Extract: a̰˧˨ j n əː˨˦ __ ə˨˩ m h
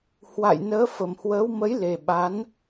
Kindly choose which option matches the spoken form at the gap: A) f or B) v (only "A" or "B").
A